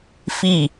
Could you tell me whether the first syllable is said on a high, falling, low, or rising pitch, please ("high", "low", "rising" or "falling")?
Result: falling